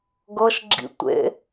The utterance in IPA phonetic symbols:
ɡ ɤ ʃ ɡ͡ǁ ḭ tʷ ḛ

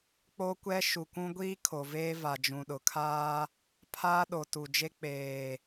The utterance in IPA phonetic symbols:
k͡p o˦ kʷ ɛ˦ ʃ u˨ kʷ ũ˦ ɡʷ iː˦ kʰ o˨ v eː˦ v a˨ d͡ʒ ũ˨ ɗ ʊ˨ kʰ aː˦ | pʰ aː˦ ɗ o˨ t u˨ d͡ʒ e˦ k͡p eː˨

